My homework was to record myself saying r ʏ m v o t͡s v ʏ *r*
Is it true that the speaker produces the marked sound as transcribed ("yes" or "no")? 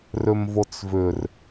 yes